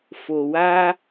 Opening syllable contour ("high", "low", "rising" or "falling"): low